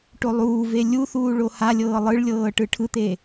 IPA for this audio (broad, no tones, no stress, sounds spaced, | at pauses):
ʈ o lˠ uː v e lʲ u θ uː ɭ o h a lʲ ɤː lˠ ɯ ɭ lʲ ɤː ʈ ɯ ʈʰ ɯ t̪ e